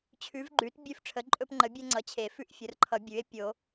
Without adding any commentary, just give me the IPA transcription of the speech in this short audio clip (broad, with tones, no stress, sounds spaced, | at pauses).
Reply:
t͡ɕʰ ʉ˩˥ v ɡ͡ǃ ʉ˩˥ t bʲ ʉ˦ f ʈ͡ʂʰ ə˩˥ ǃʼ ɵ˦ p ŋ͡ǃ ə˩˥ bʲ e˦ ŋ͡ǀ ʌ˩˥ t͡ɕʰ e˨˩˦ f ʉ˦ ʔ fʲ ə˩˥ r ǃʰ ʌ˨˩˦ bʲ ʉ˩˥ e̯ pʲ o˨˩˦